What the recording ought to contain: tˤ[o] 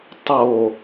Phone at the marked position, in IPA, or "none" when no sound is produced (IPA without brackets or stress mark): o